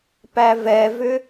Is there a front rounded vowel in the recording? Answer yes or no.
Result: yes